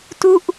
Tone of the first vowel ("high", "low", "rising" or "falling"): falling